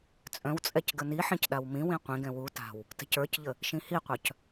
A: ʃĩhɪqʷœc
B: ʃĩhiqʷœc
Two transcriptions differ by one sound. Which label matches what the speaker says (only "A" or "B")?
B